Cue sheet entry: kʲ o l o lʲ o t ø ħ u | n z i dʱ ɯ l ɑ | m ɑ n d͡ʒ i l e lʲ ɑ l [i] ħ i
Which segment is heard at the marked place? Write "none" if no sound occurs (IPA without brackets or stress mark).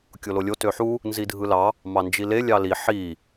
i